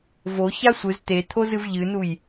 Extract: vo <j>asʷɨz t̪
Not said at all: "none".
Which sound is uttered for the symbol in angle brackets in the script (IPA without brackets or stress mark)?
ç